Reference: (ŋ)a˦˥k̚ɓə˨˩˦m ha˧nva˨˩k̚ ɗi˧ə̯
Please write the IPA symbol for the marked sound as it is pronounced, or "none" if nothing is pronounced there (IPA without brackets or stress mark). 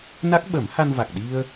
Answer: n